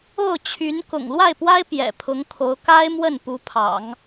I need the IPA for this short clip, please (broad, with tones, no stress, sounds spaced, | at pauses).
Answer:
o˥˩ ʊ̯ t͡ɕʰ y˧˥ n k ʊ̰˨˩ ŋ l w a˥˩ ɪ̯ p w a˥ ɪ̯ p j ɛ̰˨˩ pʰ ʊ˧˥ ŋ kʰ o˧˥ ʊ̯ k a˥ ɪ̯ m w ə˥˩ n p u˧˥ pʰ ɑ̰˨˩˦ ŋ